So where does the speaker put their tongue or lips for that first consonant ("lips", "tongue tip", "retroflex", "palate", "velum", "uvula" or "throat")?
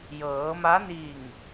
palate